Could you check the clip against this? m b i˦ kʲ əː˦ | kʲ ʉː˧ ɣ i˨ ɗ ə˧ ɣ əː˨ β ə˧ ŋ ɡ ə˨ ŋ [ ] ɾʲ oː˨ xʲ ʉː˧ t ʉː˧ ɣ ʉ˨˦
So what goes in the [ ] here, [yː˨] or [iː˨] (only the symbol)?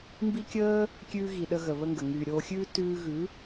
yː˨